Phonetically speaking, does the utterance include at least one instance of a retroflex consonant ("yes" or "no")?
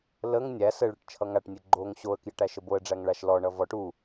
yes